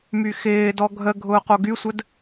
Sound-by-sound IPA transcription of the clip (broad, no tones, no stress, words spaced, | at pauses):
myxɪːdɔ ɡʱə ɡʱʊːqoɡysʷəd